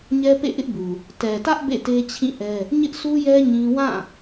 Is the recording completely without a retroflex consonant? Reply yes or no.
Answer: yes